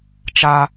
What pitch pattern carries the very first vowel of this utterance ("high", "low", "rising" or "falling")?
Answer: high